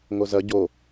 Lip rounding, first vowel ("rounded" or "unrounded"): rounded